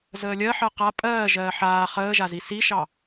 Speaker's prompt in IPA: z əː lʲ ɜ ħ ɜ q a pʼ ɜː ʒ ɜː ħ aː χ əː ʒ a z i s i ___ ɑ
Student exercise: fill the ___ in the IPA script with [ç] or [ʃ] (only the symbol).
ʃ